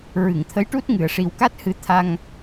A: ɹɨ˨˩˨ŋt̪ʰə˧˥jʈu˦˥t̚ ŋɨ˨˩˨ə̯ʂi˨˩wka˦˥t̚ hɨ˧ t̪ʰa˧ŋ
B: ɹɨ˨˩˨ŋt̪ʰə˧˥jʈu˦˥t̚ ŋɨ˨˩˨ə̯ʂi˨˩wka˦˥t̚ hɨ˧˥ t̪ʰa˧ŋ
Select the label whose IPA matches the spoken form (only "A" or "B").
B